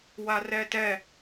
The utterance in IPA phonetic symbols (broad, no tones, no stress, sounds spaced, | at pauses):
w a r ɛ t ɛ